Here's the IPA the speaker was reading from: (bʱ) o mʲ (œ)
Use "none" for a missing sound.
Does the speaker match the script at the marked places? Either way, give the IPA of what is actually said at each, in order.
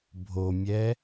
bʱ, ɛ

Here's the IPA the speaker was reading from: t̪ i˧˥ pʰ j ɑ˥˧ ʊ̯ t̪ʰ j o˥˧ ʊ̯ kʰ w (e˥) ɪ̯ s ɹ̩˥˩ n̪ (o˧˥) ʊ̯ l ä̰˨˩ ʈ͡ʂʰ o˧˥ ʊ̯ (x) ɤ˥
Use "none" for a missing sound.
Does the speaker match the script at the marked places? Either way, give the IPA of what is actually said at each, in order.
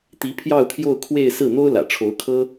e˥˧, o˥, kʰ

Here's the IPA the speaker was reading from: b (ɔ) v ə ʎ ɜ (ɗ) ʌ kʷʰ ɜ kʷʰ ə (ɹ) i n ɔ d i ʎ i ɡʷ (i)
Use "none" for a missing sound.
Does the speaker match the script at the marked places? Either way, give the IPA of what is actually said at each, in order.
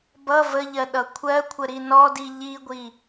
ʌ, ɗ, ɾ, i

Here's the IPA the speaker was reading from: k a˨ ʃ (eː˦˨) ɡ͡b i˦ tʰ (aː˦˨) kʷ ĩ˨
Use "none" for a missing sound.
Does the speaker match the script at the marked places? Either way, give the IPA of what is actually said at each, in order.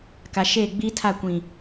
eː˦˨, a˦˨

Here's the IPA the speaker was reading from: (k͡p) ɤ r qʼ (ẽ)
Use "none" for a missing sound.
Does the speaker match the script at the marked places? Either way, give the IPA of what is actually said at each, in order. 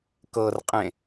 k, ẽ

